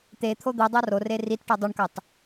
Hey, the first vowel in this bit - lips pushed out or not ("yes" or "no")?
no